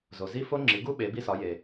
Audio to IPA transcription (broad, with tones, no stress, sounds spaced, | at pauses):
z o˨ z i˦˥ f o˦˥ ŋ͡ǁ i˨˦ ɡ u˦˥ ɓ e˨˦ b i˦˥ s ɒ˨˦ j e˨